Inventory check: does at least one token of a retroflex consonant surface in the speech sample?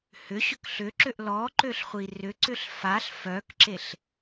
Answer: no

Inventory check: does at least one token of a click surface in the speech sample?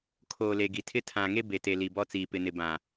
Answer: no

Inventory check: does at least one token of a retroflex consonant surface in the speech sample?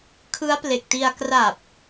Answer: no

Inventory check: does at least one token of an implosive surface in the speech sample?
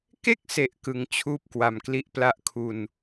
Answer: no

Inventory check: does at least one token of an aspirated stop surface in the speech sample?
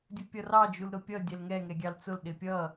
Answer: no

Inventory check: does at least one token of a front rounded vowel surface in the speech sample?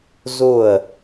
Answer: no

